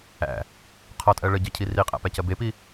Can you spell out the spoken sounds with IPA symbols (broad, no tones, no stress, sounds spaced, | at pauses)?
æ̰ | qʰ ɔ tʼ ɜ ɭ ə ɟ ɜ cʰ i r i qʼ æ̰ p æ c ɜ b e p i